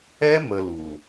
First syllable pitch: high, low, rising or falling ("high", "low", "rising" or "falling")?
high